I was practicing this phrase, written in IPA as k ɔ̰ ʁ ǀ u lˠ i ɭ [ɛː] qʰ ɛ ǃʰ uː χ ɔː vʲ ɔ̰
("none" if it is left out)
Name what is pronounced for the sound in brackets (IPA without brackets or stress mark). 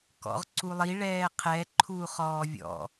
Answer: ɛː